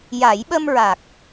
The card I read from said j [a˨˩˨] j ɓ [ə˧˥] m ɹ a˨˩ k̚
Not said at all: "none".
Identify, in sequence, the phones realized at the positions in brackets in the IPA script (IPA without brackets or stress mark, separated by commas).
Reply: a˨˩˦, ə˧